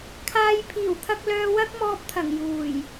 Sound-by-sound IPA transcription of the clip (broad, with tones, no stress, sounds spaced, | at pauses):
kʰ aː˧ j pʰ iː˨˩ w t̪ʰ ɐ˧ k̚ l œː˧ w ɐ˥ k̚ m ɔː˧ p̚ t̪ʰ ɐ˨˩ ŋ j uː˨˩ j